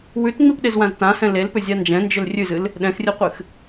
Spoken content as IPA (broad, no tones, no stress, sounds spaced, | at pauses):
w ʉ t ŋ͡m i p ɗ e z w ã z t ã h ɛ̃ l e l p ʏ zʲ a n d͡ʒ ɛ̃ n d͡ʒ ʏ l rʲ ʉ z ɨ l | ɗ ɛ̃ x rʲ ɨ qʷ ɨ x